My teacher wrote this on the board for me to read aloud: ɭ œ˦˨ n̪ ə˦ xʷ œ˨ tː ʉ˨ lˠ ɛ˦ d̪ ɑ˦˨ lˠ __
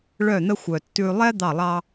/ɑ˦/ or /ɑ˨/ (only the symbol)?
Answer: ɑ˦